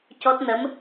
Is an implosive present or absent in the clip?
absent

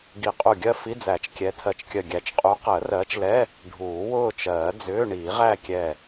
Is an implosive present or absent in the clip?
absent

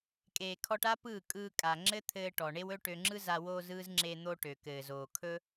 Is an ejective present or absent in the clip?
present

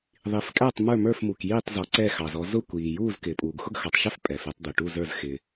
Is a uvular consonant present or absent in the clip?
absent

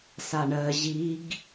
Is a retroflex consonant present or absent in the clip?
present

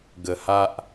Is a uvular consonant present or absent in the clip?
absent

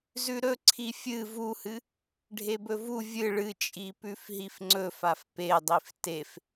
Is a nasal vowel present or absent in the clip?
absent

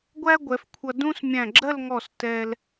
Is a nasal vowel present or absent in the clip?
present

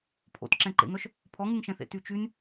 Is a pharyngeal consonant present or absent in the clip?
absent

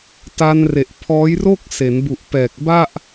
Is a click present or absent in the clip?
absent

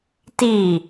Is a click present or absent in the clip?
absent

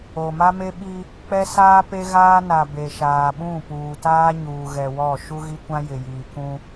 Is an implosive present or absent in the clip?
present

